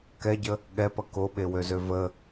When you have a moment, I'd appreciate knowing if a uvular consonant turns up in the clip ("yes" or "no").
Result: no